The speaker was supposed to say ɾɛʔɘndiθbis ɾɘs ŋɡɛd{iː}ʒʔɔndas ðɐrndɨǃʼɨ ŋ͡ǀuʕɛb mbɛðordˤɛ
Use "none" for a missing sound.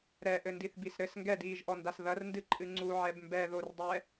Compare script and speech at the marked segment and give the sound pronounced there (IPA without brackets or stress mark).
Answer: iː